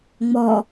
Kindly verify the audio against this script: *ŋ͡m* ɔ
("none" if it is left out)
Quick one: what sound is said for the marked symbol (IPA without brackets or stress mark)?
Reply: ŋ͡m